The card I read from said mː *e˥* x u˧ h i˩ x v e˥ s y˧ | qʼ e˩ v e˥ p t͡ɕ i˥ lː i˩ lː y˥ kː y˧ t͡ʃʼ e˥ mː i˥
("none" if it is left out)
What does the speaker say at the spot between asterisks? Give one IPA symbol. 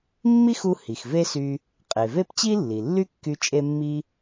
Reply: i˥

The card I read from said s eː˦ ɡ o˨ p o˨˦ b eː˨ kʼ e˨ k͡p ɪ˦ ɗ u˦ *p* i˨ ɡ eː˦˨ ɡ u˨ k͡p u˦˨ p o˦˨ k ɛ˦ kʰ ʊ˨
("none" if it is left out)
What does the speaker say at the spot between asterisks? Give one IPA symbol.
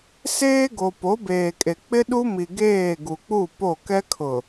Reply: m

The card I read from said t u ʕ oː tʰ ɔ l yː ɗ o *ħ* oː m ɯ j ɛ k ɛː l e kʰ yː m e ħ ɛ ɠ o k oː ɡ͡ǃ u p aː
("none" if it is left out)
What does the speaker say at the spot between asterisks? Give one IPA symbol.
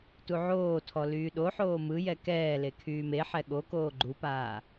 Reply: ħ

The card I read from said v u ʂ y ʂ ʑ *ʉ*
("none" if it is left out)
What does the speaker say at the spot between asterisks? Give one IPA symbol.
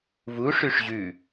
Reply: ʉ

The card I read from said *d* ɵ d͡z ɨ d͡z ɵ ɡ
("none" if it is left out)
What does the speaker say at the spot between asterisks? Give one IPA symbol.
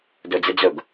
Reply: d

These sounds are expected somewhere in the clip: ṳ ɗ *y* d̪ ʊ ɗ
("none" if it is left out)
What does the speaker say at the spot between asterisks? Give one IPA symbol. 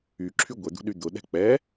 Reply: y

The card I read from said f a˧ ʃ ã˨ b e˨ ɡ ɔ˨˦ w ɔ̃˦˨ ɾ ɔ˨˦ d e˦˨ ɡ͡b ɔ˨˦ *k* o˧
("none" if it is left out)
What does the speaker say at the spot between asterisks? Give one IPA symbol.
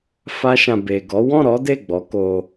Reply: k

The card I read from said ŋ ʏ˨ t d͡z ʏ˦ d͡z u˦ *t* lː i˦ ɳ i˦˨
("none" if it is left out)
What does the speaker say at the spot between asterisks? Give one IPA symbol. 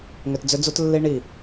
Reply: t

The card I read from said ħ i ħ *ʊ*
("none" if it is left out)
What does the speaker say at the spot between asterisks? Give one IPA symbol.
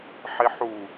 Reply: u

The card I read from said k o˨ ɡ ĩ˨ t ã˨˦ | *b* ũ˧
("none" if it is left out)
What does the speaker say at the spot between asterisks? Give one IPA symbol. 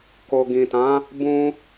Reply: b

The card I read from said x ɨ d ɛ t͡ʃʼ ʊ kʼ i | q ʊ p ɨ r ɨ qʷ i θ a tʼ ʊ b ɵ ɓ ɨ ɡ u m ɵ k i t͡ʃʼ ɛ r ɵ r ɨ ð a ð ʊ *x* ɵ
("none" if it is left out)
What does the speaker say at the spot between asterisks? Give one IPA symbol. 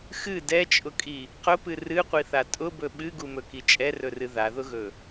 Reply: ɣ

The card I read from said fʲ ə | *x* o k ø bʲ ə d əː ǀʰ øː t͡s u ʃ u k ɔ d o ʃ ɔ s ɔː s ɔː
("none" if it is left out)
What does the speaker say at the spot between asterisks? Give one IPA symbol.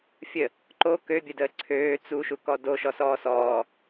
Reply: ǃ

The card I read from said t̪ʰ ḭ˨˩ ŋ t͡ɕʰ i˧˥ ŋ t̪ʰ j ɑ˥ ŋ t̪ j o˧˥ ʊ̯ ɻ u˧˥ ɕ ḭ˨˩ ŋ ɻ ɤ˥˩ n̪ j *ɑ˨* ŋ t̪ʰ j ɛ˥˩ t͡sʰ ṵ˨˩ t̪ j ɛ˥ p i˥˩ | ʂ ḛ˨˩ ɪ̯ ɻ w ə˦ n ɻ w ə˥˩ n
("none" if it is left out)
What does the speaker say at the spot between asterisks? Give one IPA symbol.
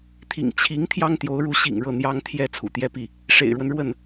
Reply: ɑ˥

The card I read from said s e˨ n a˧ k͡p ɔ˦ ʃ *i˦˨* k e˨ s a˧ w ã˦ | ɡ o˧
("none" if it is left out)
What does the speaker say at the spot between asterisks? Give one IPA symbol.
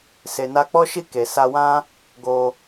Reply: i˦˨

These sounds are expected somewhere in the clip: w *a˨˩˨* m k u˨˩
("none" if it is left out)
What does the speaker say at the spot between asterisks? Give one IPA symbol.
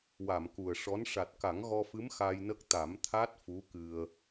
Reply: a˨˩˨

